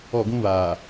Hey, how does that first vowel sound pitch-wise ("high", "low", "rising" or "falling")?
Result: falling